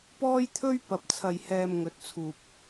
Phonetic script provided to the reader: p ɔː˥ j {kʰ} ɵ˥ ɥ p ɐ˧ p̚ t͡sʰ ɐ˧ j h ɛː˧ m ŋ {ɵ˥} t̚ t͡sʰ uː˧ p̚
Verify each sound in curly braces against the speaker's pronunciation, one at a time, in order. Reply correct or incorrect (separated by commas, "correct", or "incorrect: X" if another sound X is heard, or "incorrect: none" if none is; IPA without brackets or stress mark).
incorrect: t̪ʰ, incorrect: ɵ˧